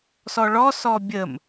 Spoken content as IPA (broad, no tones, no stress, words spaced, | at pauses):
sɔɭɔsɔ bʲəm